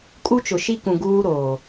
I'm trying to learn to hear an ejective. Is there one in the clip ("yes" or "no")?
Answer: yes